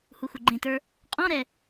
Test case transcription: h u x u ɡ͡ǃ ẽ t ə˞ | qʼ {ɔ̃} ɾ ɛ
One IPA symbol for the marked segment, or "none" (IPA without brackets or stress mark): ɔ̃